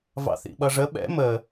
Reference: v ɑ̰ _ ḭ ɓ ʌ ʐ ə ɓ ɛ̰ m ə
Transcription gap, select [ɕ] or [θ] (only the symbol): θ